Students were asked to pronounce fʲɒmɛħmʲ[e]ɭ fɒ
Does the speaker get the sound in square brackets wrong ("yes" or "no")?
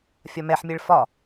no